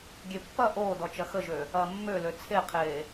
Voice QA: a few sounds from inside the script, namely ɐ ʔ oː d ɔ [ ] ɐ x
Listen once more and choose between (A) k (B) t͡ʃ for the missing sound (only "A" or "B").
B